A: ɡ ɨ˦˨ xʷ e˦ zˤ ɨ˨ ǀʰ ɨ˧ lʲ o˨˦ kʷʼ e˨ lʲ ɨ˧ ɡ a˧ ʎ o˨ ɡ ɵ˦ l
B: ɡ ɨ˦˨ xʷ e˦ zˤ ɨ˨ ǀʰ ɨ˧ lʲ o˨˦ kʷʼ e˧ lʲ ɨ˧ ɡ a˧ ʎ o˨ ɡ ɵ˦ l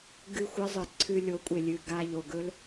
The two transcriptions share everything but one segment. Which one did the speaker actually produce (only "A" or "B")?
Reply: A